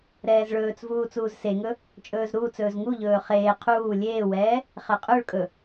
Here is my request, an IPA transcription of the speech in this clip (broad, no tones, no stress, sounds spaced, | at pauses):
ɾ ɛː z ɭ ɵː t͡s v uː t͡s uː z s e ŋ ɵ | t͡ʃʼ ɵː z ɾ uː t͡s ɵː z ŋ u ʎ ɵː χ eː qʰ uː lʲ eː w ɛː | χ ɛ qʼ ɵ ɭ kʼ ɵ